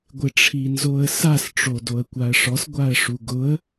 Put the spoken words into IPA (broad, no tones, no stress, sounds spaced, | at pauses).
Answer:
ɡʷ ɪ ʈ͡ʂʰ i n z o ə̯ s a s ʈ͡ʂ o d o ə̯ kʷ a ə̯ ʂ ɔ s ɡʷ a ə̯ ʂ u ɡ ʊ ə̯